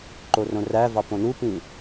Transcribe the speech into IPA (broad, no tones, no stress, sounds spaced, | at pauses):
ǃ o r õ r æ v ɑ p õ n u p ĩ